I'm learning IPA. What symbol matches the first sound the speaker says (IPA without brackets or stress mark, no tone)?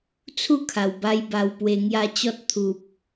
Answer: t͡sʰ